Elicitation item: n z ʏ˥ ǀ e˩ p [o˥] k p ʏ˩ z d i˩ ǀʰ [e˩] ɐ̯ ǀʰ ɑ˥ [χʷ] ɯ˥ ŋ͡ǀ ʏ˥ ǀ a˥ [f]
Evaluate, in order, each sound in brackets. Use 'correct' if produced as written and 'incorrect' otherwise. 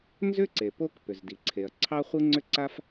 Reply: correct, correct, correct, correct

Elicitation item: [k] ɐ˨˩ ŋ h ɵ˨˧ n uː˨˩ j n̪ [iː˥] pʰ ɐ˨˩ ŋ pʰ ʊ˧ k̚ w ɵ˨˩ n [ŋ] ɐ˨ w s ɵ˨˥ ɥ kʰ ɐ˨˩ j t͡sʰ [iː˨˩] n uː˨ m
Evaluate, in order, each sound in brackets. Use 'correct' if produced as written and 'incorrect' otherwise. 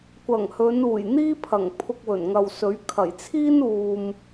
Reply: incorrect: kʷ, correct, correct, incorrect: iː˥

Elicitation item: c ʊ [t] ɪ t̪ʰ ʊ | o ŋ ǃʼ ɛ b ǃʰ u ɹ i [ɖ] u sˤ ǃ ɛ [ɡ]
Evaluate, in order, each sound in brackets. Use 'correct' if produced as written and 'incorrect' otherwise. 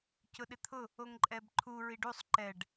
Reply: incorrect: ɗ, correct, incorrect: ɖ

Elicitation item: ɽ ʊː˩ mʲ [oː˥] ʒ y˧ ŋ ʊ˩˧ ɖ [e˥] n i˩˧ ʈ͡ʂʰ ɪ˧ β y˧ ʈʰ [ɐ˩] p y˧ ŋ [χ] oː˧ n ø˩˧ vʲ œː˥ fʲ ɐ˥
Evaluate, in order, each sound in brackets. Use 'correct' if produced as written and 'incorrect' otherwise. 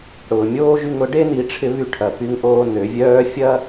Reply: correct, correct, correct, incorrect: ʔ

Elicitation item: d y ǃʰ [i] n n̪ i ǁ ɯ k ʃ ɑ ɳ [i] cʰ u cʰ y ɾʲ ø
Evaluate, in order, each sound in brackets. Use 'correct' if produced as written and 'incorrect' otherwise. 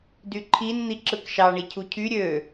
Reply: correct, correct

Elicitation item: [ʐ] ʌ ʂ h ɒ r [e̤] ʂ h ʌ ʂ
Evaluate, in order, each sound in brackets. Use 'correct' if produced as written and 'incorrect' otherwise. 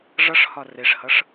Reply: correct, incorrect: e

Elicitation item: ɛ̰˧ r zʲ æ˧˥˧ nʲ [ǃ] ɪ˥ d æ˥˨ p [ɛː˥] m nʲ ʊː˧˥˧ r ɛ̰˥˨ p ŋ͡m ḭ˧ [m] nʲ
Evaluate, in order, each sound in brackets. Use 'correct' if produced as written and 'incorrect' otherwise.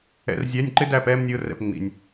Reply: correct, correct, incorrect: none

